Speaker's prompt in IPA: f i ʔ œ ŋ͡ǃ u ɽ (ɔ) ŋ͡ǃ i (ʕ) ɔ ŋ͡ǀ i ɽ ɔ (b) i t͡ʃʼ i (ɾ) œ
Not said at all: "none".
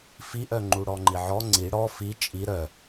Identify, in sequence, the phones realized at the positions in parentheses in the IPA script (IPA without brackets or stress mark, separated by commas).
ɔ, ʕ, f, ɾ